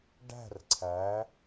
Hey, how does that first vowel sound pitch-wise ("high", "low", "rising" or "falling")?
falling